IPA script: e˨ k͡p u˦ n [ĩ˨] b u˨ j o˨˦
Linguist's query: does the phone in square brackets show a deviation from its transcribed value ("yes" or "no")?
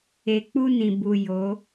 no